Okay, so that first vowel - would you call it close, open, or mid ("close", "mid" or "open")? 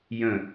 mid